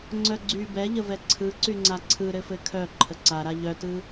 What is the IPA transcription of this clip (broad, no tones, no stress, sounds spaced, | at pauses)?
ŋ͡ǀ œ ɡ͡ǀ y b ɛ ʎ ə v ɛ ǀʰ ɯ ǀ y ŋ͡ǀ a ǀʰ ɯ ɾ ɘ f ɘ kʰ œ ǃʰ ə ǀ a ɾ a ʎ œ t ɯ